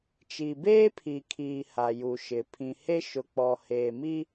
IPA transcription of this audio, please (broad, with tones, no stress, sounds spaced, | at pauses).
t͡ʃ i˨ b eː˦ pʰ i˨ kʰ iː˨ h a˨ j u˨ ʃ ɪ˨ pʰ ĩ˨ h e˦ ʃ ʊ˨ k͡p ɔ˨ h eː˨ m i˦